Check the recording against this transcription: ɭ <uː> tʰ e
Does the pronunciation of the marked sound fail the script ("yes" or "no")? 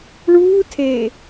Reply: no